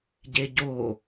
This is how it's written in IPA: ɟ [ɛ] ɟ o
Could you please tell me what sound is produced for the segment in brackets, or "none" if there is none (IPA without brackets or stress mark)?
e